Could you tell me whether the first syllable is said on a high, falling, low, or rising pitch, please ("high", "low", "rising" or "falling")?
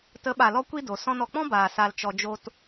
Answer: rising